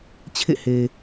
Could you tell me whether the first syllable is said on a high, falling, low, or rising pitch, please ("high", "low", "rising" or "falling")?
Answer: falling